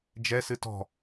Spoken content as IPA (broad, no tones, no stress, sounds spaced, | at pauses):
d͡ʒ ɛ s ɨ t ɔ̤